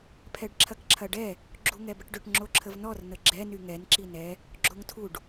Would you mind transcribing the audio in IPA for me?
pʰ ɛ ɖ ǁʰ ɐ k ǁʰ ɐ ɖ ɛ | ɡ͡ǁ u ŋ ɛ b ə ʈ ɖ ʏ ʈ ŋ͡ǁ o ǁʰ ə v n ɔ r n ə ɡ͡ǁ ɛ n y ŋ ɛ n ǁ i n ɛ | ɡ͡ǁ o ŋ tʰ u ɖ

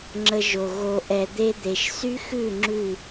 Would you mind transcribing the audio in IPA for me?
ŋ͡ǁ ə˧ ʒ o˨ ɣ o˨ ʔ ɛ˨ d̪ e˧ d̪ e˨ ʃ s y˦ x ʉ˦˨ ŋ͡ǁ ʉ˦˨

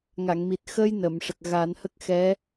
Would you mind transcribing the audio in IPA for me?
ŋ a˨˩˨ ŋ m i˨˩ t̚ x ə˧ j n ə˨˩˨ m ʂ ə˨˩ k̚ ɣ a˨˩˦ n h ə˦˥ k̚ x ɛ˧˥

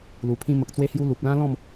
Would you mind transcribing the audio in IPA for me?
l u˨˩ pʰ ĩ˧ m ə˨ k̚ t͡s w e˧ h j u˧ l u˨ p̚ l ã˦ l ɔ̃˥˧ m

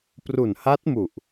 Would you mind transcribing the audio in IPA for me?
p r u˨˩ n h a˦˥ t̚ m u˨˩ ʔ

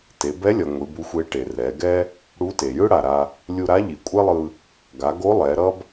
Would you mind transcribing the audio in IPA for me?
t e˩˧ b ɛ˧˥ lʲ ʌ˩ ŋʷ i˩˧ b u˧˥ xʷ e˧˥ ʈ e˩ r ɛ˩˧ ɡ ɛ˥ | ɽ u˧˥ t e˩ j ɯ˥ ɽ a˩ ɾ a˧ | lʲ u˧ ɾ a˧˥ ʎ i˩ kʷʼ ɛ˥ lˠ ɯ˧ | ɡ a˩˧ ɡ o˧˥ lˠ ɛ˩˧ ɾ ʌ˥ b

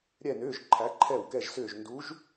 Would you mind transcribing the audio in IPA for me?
ɾʲ ɛ˥˧ n ʏː˧˥˧ ʒ ǃʰ æ˧˥ ǃʰ ɛ˥˩ w k ɛ˥˧ ʒ s ʏː˥˧ ʒ n d u˧˥ ʒ

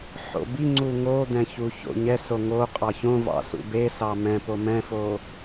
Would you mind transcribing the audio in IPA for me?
ħ o̰ b i ŋ͡ǀ u ŋ o d̪ ɛ̃ ç u ç o̰ ɲ ɛ s o ŋ o qʼ ɑ ç õ v ɑ̰ s ṵ b e s ɑ m ɛ̃ p o m ɛ̃ f o

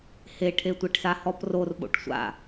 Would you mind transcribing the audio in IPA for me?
h e ʈʰ e tʷ ɛ ʈ s a h ɔ p r o r ɓ o̰ ʈ sʷ a̰

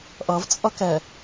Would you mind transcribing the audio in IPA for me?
ʔ ʌ v t͡sʼ ʌ k ɛ

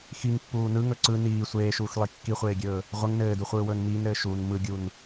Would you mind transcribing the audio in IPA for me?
x i ŋ pː uː n ɯ ŋ ɵ ǀ ɯ n iː sʷ eː ʃ uː x lˠ i kː i χʷ eː ɡʲ ɵː | ʁʷ ɘ ŋ n ɘː d u χʷ ɯː w ɵː n m iː n ɾ ɘː ʃ u n m ɯ ɡʲ u n

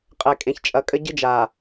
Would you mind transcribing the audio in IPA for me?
qʼ ɛ˨ kʼ ẽ˨ ç t͡ʃʼ ɐ˨ kʼ ɘ˦ ɟ ɨ˦ d͡ʒ a˨

